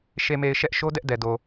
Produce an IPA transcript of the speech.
ʃ e˨ m e˨ ɪ̯ ʃ ɛ˦ ʔ ʃ o˦ d ɛ˦ ʔ d ɛ˨ d o˨

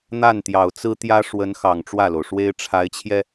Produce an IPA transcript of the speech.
n̪ a˥˩ n t̪ j ɑ˨˩ ʊ̯ t͡s ɹ̩˥ t̪ j ä˥ ʂ w ə˧˥ n x ɑ˨˩ ŋ ʈ͡ʂ w ä˥˩ l o˩ ʊ̯ ʂ w e˥ ɪ̯ ʈ͡ʂʰ a˧˥ ɪ̯ t͡ɕʰ j ɛ˧

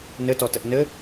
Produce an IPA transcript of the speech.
n ɘ t ɔ t ə ʔ n ɘ

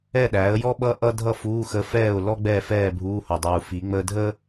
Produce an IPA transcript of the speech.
ɛ˥˨ ɗ æː˩˥ ə̯ j ɔ˥ ɓ ʌ˥ ʔ ʌ˥ dʱ ʌ˥˨ f uː˧˥˧ x ə˧˥ f ɛː˥˨ ʊ̯ l ɔ˥ ɡ͡b ɛː˥˨ f ɛː˥˨ bʱ uː˧˥˧ h o˨˩ dˤ uː˨˩ f i˩˥ ŋ͡m əː˥ dʱ əː˥

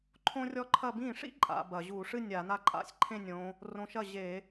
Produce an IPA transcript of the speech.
ǃʰ õ˥ rʲ ɔ˥ ǃʰ ɐ˥˧ b ĩ˥˩ ʂ ḭ˥ ǃʼ a̰˨˦ b ɐ˧˩˧ ʑ u˧˩˧ ʂ ɨ˥˧ nʲ a˧˩˧ n a˥˩ ǃʼ a̰˥˧ sʲ ǃʰ ẽ˥˧ nʲ õ˨˦ | r õ˨˦ ʃ ɐ˥˩ ʑ e˧˩˧

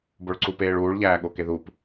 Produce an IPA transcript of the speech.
b o ɭ ǀ u p eː ɭ uː ɭ ʎ æː ɠ o k e ð u p

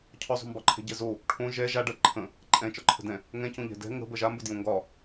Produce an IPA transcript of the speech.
cʰ ɒ zˤ o̤ m b ɒ ǃʰ ɛ̤ ɟ ɛ z o | ʈʰ õ ʒ ɛ ʒ a ɖ ɜ ǃʰ ə̃ | ǃʼ ɛ̃ t͡ʃ ɒ ǃʰ ə̤ d ɛ̃ | ŋ ɛ̃ c õ ʎ ɛ̤ d ɛ̤ ŋ ə̤ b ɜ ʒ a m b ə d j õ ŋ ɡ ɒ

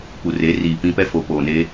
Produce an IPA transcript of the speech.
p u˨ r e˨˦ r iː˨ p ĩ˦ p ɛ˦ f o˨ p oː˨ n e˦

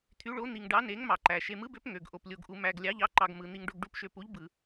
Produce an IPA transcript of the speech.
t̪ʰ y˧˥ ɭ o˧˥ n̪ i˧ ŋ ɖ ɑ˧˥ n e˧˥ ŋ m ɑ˧ ǃ æ˧ ʃ e˧ m ɯ˧˥ b ø˧˥ p ŋ ø˧ ɡ ʔ o˧ p lʲ o˧ ɡ ʔ u˧ m æ˧ ɡ lʲ ɑ˧˥ ʎ ɑ˧˥ ǃ ɑ˧ ɡ m ɯ˧ n̪ i˧ ŋ ɖ o˧ ɡ ɖ u˧˥ p ʃ ø˧ p u˧˥ ʎ b ɯ˧

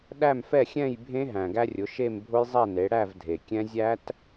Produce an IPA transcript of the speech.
ɗ æ˥˨ m f ɛ˥˨ xʲ ɛ̃˥˨ j bʱ ẽ˦˥ ɦ æ̃˩ ɡ æ˧ rʲ ʊ˩˧ ʃ e˥˨ m bʱ ʊ˦˥ j zˤ ɛ˥˨ n e˩˧ ɽ æ˥˨ v dʱ e˩ kʲ ɛ̃˦˥ zʲ æ˦˥ t

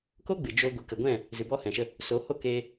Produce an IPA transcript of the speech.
k o˦ ɡ͡b ɨ˨ d͡ʒ o˧ ɡʷ ɨ˨˦ k ə˨ ɡʷ ɛ̃˦˨ | z ɨ˨ b ɔ˦ h ɛ̃˨ ʃ ə˧ | s o˨˦ h o˦˨ k eː˧

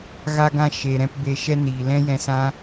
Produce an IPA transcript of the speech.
ɣ a˧ ɡ ã˧ ʃ e˨ ɾ ɛ̃˧ p b e˧ ʃ ɛ˧ n iː˨ l ɛ̃˦ j ɛ̃˧ s ã˦

